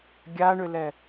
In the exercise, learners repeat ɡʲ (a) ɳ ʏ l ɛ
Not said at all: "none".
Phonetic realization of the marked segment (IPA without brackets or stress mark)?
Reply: a